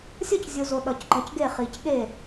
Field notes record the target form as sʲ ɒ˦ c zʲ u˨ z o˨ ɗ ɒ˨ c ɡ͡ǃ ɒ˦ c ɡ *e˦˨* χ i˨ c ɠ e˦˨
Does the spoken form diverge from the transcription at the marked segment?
no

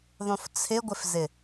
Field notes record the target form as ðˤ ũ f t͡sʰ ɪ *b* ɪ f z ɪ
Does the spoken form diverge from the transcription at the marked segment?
yes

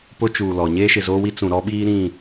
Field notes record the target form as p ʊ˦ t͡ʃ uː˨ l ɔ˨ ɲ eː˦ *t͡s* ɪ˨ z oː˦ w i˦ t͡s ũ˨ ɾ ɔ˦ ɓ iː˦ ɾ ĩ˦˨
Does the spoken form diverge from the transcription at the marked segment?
yes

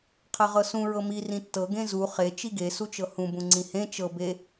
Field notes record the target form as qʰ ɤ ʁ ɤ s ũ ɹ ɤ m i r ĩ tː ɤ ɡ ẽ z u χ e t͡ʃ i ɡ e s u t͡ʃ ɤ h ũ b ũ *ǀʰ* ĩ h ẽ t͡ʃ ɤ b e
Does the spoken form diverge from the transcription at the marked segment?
yes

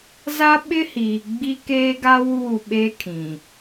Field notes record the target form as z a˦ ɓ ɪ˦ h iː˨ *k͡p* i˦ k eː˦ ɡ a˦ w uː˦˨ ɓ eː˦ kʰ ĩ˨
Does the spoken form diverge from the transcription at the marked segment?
yes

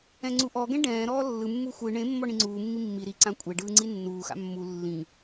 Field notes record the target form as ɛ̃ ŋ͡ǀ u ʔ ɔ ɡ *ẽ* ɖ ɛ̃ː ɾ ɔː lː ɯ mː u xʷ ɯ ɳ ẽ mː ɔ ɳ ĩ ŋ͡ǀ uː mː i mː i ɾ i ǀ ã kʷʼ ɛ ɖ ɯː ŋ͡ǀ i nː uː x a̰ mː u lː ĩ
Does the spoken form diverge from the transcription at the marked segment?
yes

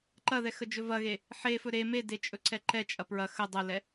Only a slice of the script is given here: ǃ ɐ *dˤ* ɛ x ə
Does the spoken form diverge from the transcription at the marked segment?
yes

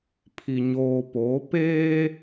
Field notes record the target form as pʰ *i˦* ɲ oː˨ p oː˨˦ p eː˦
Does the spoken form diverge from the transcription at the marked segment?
yes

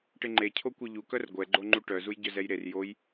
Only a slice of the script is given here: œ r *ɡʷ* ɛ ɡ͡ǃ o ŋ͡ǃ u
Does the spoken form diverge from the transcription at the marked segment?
no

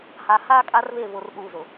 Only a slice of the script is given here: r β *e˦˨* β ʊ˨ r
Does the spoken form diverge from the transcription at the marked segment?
no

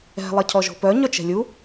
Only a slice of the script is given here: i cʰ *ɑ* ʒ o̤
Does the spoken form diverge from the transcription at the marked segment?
yes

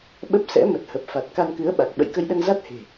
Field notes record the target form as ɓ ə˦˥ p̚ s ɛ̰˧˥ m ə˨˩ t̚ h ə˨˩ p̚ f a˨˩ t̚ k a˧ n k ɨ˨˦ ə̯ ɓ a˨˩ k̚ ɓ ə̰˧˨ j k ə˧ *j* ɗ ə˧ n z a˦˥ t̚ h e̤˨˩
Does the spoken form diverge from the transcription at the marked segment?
no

